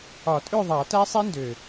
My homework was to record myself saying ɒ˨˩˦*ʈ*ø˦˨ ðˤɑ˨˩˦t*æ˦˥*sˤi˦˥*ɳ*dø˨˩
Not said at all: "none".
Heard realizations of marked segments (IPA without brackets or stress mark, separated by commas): tʼ, æ˦˥, n